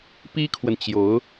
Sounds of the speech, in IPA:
p i˥ kʰ w ə˨ n t͡ɕ j o˧˥ ʊ̯

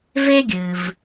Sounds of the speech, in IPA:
v e˥ ɡʲ ɨ˩ v

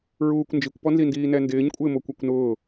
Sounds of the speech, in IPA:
ɹ uː kʷ n d͡ʒ i kʷ p ɔ n z i n d iː n ɛ n d ɪː ɲ kʷʼ ɪː m o kʷ ɛ kʷ n ʊː

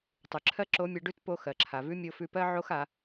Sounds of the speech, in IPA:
tˤ ʉ˩ ǁʰ ɜ˥ ǁ o˧˥ mʲ ɛ˧ ɖ ʉ˥ t p o˧ x ɜ˩ ǁʰ a˩ v ʉ˧˥ mʲ o˧ f ʉ˧ p ɜ˥ ʕ o˥ x a˩˧

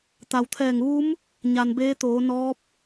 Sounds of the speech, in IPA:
t̪ a˩ w t̪ʰ ɛː˧˩ ŋ ʋ u˧˥ m | ɲ a˩ n b eː˧˥ t̪ oː˩˧ n ɔː˧˥ p̚

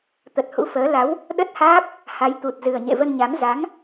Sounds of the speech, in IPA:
t̪ ə˨˩ t̚ h ṵ˧˥ f əː˨˦ l a˨˦ w | ɗ ə˦˥ t̚ h aː˦˥ p̚ | h a˨˦ j t̪ u˨˩ t̚ z ɨ˨˩ ə̯ ɲ ḛ˧˨ v ə˧ n ɲ a˨˦ m z a˨˦ ŋ

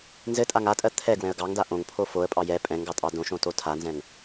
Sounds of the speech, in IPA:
n z ɘ tʼ a ŋ a tʼ ɜ t̪ʰ ɛ ɡ w ɛ̃ ə̯ ɡ ɑ ŋ d a ʔ õ ŋ pʰ o f o ə̯ pʼ ɑ j ɛ pʼ ɛ̃ ŋ ɡ ɑ tʼ ɑ d õ ʃ õ t o tʰ a n z ɛ̃ ŋ

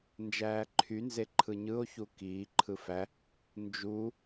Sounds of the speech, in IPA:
n d͡ʒ æː ǃʰ y n z e ǃʰ ɯ ɲ ɯ o̯ ç u k iː ǃʰ ɯ f æ | n d͡ʒ u

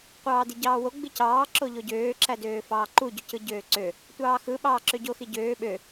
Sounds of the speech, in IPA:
qʷ ɑː d i ɟ ɑː w o ɡ͡b i c ɑː ǁ o ʎ o ɟ øː ǁ æ d øː f ɑː ǃ u ɟ o c ɯ ɟ øː ǀ ø | tʷ ɑː x ɯ ɓ ɑː ǁ ø ɟ o x i ɟ øː ɓ ø

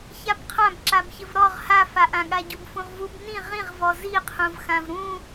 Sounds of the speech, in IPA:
ç a b qʰ ã b ǁ a b ç ɘ v ɾ ɔ ʁ h a f a ʔ ã ɠ a ɟ u b f ũ ʁ v u b n ĩ ʁ ĩ ʁ v ɔ z i qʰ ũ v x ã v ɾ ũ

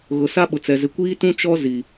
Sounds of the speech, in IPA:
ɣ ʊ˨ s a˦ ɓ ʊ˨ t͡s ɛ˨ z ɪ˨ kʷ iː˦ t ũ˦ t͡ʃ ɔ˦ z i˨

